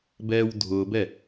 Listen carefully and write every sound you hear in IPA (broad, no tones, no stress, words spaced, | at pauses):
bɛːwdʱʊːbɛ